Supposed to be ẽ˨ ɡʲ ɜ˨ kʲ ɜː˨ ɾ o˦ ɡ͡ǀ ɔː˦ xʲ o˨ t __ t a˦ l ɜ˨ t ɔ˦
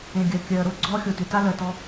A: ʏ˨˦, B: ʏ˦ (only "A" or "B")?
A